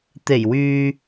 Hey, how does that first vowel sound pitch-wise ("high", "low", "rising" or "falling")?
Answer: low